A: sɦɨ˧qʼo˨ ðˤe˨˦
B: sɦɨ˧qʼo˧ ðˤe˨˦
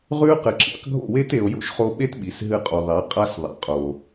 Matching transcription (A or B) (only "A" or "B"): A